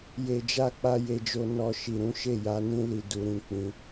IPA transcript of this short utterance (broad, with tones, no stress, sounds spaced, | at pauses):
j e˨ d͡ʒ a˧ k͡p a˧ j e˧ d͡ʒ o˧ n ɔ˨ ʃ i˨ ɾ ũ˨˦ ʃ e˦˨ j a˨˦ n ĩ˦ l i˧ d u˨ ɾ ĩ˨˦ k͡p ĩ˧